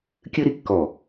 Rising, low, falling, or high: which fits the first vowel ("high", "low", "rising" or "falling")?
high